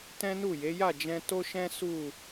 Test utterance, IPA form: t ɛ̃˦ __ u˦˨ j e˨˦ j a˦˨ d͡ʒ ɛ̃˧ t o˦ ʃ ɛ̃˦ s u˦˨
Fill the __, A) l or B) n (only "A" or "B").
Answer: B